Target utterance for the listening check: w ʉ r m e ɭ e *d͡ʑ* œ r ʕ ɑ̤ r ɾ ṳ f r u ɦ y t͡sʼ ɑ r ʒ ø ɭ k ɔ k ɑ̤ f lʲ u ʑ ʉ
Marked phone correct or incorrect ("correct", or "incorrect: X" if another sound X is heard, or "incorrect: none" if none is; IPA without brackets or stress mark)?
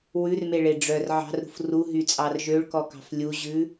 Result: incorrect: ɖ͡ʐ